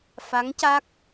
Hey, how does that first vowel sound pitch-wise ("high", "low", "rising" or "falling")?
rising